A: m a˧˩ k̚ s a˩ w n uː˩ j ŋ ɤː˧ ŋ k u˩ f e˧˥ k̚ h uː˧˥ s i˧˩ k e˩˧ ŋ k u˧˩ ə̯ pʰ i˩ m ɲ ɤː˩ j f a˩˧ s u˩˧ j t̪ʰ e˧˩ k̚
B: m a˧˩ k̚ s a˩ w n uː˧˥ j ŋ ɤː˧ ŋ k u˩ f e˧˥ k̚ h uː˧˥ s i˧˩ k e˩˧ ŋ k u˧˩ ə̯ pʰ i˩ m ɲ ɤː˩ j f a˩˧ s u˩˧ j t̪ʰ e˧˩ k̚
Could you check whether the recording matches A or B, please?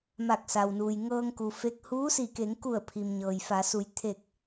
A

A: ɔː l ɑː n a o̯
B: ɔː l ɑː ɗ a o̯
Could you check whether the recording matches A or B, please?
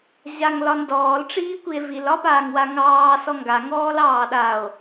B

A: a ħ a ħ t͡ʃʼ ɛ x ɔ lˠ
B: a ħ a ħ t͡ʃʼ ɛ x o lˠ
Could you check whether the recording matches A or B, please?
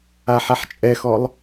A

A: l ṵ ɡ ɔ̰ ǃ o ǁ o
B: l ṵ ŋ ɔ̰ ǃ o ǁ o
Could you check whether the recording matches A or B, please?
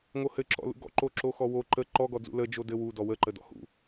A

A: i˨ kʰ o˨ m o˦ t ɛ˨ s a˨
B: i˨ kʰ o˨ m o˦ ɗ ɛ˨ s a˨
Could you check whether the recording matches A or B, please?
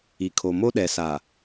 B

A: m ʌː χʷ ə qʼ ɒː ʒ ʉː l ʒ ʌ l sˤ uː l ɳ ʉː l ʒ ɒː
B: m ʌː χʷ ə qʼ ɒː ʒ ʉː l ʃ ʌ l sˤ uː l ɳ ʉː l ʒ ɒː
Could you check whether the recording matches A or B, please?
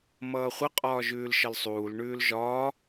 B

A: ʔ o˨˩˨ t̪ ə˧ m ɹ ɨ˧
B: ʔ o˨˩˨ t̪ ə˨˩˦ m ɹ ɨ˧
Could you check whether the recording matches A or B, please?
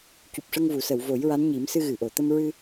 A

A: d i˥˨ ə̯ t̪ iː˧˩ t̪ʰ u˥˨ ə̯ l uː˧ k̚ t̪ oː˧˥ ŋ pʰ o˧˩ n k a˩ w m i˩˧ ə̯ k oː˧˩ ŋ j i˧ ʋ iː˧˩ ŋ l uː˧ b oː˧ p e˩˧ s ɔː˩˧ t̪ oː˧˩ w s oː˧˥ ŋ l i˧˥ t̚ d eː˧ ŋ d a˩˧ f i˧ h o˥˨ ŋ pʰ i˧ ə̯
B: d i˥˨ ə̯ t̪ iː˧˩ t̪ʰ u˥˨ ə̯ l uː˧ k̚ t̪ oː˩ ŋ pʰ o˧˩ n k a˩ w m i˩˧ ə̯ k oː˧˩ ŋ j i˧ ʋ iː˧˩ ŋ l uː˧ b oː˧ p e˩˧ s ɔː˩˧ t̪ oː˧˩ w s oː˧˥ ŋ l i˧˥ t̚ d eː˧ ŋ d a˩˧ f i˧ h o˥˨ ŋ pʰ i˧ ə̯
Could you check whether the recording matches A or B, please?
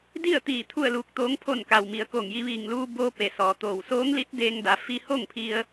A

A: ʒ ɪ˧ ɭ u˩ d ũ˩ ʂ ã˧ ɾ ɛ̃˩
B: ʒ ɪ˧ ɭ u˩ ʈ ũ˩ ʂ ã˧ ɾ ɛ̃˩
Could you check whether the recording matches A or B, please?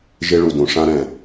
A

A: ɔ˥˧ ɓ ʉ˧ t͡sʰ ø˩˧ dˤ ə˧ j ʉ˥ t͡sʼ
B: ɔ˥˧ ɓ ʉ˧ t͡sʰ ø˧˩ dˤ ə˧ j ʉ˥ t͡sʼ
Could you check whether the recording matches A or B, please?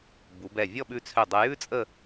B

